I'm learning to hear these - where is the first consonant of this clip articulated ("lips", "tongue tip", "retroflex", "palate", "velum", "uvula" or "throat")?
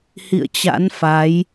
throat